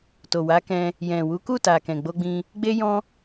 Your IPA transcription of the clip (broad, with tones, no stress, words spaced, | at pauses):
to˨wa˨˦kɛ̃˧ | jɛ̃˨wu˨˦ku˦˨ta˨ kɛ̃˨ɡ͡bo˧ɡ͡bĩ˧ | ɡ͡be˦jɔ̃˦